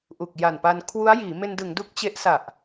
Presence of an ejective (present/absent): absent